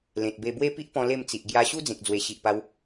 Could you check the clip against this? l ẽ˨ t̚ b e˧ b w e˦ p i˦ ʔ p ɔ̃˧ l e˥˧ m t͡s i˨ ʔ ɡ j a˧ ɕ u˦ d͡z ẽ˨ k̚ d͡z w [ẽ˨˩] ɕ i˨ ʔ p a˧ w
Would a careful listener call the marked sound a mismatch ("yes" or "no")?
yes